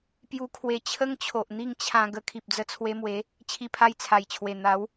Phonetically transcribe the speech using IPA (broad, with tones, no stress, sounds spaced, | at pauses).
p j u˧ kʰ w e˧ t͡ɕʰ ə˦ ŋ t͡ɕʰ o˨ ʔ n̪ i˥˧ ŋ t͡ɕʰ ã˧ ɡ ə˧ kʰ i˨ p̚ d͡z ə˧ t͡sʰ w e˧ m w e˨˦ | t͡ɕʰ i˧ pʰ a˧ j t͡sʰ a˨˩ j t͡ɕʰ w e˨˩ n̪ a˨˦ w